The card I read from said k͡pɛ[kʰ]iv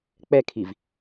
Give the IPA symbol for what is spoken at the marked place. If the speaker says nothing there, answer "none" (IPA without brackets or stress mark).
kʰ